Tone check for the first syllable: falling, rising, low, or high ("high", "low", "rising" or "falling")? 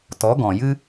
rising